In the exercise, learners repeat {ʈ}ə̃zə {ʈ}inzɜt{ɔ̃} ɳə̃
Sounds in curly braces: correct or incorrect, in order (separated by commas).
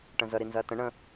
correct, incorrect, incorrect